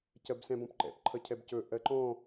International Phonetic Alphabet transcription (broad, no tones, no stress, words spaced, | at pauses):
cɜbsɛ̃bɔ̃pǃɛ̰p ǃʰʌcʰɛbcɵ ʔɜǃɔ̃